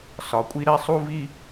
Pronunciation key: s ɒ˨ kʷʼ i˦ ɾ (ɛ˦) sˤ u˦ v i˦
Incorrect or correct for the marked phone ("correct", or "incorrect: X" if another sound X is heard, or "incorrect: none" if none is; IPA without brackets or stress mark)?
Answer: correct